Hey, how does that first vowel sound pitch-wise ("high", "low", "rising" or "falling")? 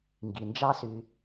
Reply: low